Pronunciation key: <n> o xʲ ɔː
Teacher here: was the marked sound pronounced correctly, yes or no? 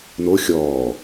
yes